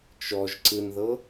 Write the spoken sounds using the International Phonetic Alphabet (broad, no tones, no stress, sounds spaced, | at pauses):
t͡ʃ ɔ ʒ ǀ ɯ n ð ɤ